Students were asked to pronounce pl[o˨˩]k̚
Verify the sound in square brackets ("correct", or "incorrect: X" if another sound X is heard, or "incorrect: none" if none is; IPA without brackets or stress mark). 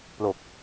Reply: correct